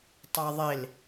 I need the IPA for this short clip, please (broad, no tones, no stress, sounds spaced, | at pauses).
tˤ a ðˤ e l